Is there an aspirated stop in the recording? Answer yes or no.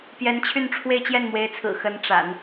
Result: yes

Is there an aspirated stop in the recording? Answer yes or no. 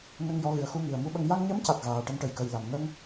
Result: no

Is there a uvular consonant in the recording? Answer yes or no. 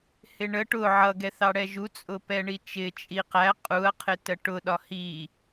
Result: yes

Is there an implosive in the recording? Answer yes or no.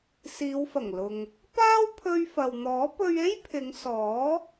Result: no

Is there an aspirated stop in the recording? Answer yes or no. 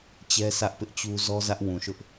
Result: no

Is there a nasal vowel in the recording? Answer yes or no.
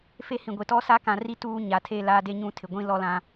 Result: yes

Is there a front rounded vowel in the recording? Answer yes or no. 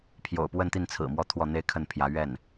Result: no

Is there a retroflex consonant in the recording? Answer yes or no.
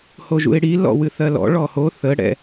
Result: yes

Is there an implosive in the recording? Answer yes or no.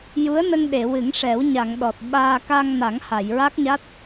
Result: yes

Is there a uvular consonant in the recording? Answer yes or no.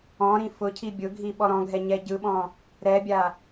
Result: no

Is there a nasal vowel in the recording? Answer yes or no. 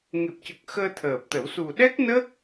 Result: no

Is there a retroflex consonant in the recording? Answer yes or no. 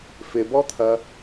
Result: no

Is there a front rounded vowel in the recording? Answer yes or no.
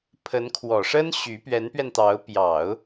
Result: yes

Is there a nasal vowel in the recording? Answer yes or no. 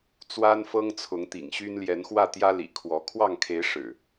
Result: no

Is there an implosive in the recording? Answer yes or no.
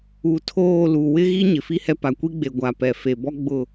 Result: no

